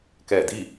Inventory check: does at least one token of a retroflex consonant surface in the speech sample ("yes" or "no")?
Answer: no